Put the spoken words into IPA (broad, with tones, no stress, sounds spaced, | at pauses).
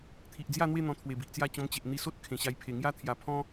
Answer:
t̪ʰ i˨ ʔ d͡z j a˥˧ n̪ w e˥˧ n̪ ɔ̃˧ t̪ʰ w e˨˩ b i˨ ʔ t͡s j a˥˧ t͡ɕ ɔ̃˧ m t͡ɕ e˨ ʔ n̪ i˧ s o˦ t̚ kʰ ẽ˨˩ ɕ a˧ j pʰ e˨˩ ŋ j a˦ t̪ʰ j a˨˩ pʰ ɔ̃˦